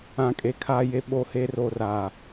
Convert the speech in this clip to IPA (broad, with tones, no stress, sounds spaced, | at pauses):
ã˨ kʼ e˨ kʰ aː˨ j e˨ ɓ o˦ h e˦ r o˨ r aː˨